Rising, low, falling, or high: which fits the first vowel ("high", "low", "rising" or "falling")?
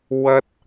high